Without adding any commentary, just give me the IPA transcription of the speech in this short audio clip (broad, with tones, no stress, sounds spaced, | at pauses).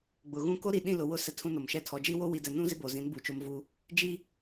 ɡ͡b ʊ˨ ɣ ũ˦ k o˦ ɾ i˨ ɗ ĩ˦˨ l ʊ˨ w ʊ˦ s ɛ˦ tʰ ũ˦ n o˨ m ʃ ɛ˦ tʰ ɔ˨˦ d͡ʒ i˦ w o˦ w i˨ d ɛ˨ n ũ˦ z ɪ˦ b o˨ z ĩ˨˦ n b u˨ t͡ʃ o˦ m v u˦ | d͡ʒ i˦